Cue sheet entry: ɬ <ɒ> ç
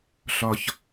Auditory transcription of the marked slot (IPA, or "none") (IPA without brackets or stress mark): ɒ